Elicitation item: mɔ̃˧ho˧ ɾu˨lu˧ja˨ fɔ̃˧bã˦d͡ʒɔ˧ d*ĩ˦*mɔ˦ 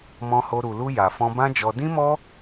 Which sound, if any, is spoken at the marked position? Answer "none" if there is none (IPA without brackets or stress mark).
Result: ĩ˦